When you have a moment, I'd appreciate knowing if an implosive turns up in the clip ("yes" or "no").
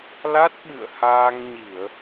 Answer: yes